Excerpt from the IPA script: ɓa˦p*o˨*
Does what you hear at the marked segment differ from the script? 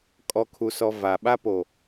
no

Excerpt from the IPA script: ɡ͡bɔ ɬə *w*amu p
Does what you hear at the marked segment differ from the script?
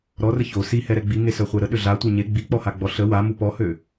no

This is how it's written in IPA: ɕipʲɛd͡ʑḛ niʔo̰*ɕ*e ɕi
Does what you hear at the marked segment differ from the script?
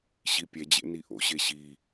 no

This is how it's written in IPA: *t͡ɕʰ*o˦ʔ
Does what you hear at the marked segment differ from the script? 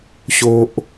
yes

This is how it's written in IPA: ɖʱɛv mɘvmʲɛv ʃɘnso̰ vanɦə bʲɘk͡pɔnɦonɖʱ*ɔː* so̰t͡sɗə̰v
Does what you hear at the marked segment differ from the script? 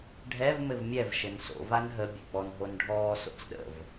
no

